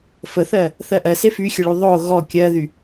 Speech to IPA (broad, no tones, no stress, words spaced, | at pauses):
fəθɜ | θɜʔɜse fyxʲəɭy ðˤo ɣɔ kʲɜðy